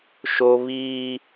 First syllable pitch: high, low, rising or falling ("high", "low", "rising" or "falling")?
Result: high